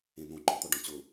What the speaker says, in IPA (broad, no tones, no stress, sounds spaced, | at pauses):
ẽ n̪ õ ɡ͡ǃ ɔ̃ t̪ ɔ ɖ ɔ̃ t͡ɕ ʊ